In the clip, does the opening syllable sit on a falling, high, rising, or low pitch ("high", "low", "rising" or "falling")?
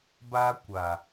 high